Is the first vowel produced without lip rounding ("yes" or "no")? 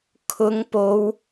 no